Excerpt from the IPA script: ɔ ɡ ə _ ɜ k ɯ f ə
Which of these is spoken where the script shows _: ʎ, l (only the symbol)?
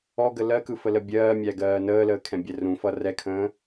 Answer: l